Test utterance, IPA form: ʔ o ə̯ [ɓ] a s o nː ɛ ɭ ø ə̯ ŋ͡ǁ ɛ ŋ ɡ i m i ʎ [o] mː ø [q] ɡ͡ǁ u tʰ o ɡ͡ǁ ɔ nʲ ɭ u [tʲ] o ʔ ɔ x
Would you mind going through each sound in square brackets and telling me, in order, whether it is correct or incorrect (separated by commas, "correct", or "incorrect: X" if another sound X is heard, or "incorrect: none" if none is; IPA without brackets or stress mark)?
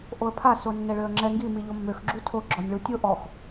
incorrect: pʰ, correct, incorrect: x, correct